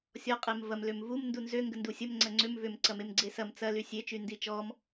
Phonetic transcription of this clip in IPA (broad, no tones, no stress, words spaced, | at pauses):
sʲɔ qʼemvɐm lømvum ndunzø ŋɡəndusʲəm ŋ͡ǀɐŋ͡ǀʏm vʏm ǀɐmemɡ͡ǀesɐm t͡sɐ lysʲe t͡ʃyndit͡ʃɔm